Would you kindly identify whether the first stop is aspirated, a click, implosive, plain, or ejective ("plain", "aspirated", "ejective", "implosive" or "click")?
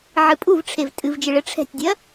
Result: ejective